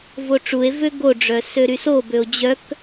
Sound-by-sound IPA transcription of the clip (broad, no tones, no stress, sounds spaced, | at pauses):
v o ʈ͡ʂ u e̯ v ø ɡ o ɖ͡ʐ œ s ø ɾ y s o b ø o̯ d͡ʑ œ k